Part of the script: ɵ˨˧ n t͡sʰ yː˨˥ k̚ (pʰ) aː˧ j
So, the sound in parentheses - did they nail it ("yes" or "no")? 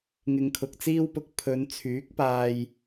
no